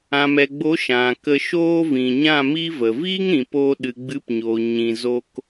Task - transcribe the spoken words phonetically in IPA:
ã˨ m ɛ˨ ɡ͡b o˨˦ ʃ ã˨ k ə˧ ʃ oː˦ v ĩ˨ ɲ ã˦˨ m i˦ v ə˨ v iː˦ ŋ ɾ ĩ˨ p oː˧ ɗ ɨ˨ ɡ͡b ɨ˨˦ p ɲ oː˨ ɲ ĩ˧ z o˦ k

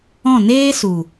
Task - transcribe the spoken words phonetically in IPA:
ɔ̃˦˨ n eː˦ s u˨

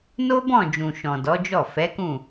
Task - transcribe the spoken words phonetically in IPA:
n o˦ b ɔ̃˦˨ d͡ʒ ũ˨ ʃ ɔ̃˨ d ɔ˨˦ d͡ʒ ɔ˦˨ f ɛ˨˦ k ũ˦˨

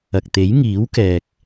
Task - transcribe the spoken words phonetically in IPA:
ɐ˨ k̚ t̪ e˨˥ j ŋ iː˨˥ w k ɛː˨ k̚

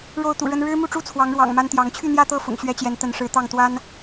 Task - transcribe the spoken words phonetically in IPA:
ɻ o˥˨ ʊ̯ t̪ ṵ˨˩ ɻ ə˦ n ɻ ɻ̩˦ m u˥˨ ʈ͡ʂ u˥˨ t͡sʰ w ɑ˨˦ ŋ ɻ w ɑ̰˨˩ ŋ m a˦ n t̪ j ɑ˨˦ ŋ t͡ɕʰ y˥˨ n̪ j ä˥˨ t̪ ɤ˥˨ f ʊ̰˨˩ ŋ ɕ ɥ ɛ˦ t͡ɕ j ɛ˨˦ n t̪ ə˨˦ n ʂ ɻ̩˨˦ t̪ ɑ˥˨ ŋ t̪ w a˦ n

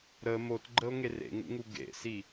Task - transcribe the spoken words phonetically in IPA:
ɾ ə m o t ɡ͡ǃ ə o̯ ŋ e r ḛ ŋ ṵ ŋ u ɡ ḛ s i

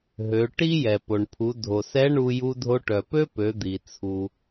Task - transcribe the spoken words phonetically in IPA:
ɦ ø˩˧ ʈ i˥ j ɛ˩ p o˩ ɳ pʰ u˩˧ dʱ o˩ s ɛ˧˥ ɳ u˧ j u˧ dʱ o˧ ʈ œ˩ p ø˥ p ø˩˧ d̪ i˩ t͡sʰ u˩

